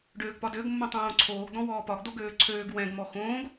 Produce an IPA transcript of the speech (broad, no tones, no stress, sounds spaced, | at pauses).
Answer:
ɖ øː ɡ p ɒ d ø ɡ mː õ tˤ õː ǀʰ oː ɡ d ɔ̃ w ɔː p ɒ ɡ d o ɡ øː ǀʰ øː ɡ w ɛ̃ ɡ m ɔ x õː ɡ